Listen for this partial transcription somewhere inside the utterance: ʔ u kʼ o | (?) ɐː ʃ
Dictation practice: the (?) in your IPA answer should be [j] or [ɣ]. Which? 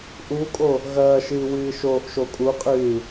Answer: ɣ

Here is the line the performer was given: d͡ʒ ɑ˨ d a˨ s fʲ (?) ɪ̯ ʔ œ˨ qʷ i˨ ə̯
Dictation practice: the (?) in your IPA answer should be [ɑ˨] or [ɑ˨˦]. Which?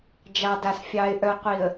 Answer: ɑ˨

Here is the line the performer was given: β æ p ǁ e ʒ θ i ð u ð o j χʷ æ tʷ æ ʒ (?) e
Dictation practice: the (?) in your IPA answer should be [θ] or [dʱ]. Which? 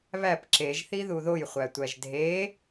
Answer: dʱ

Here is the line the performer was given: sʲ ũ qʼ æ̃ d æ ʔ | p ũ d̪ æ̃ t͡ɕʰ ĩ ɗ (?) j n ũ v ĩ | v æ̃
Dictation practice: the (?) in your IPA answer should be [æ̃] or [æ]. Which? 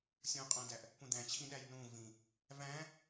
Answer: æ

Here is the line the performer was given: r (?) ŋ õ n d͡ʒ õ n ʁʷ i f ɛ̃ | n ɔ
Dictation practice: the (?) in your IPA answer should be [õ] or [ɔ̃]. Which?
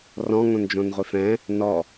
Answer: ɔ̃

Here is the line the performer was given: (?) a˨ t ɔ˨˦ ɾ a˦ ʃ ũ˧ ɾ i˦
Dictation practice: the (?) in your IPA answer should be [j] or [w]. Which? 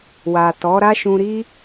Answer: w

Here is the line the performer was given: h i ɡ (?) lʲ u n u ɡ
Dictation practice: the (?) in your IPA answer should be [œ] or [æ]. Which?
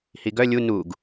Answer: œ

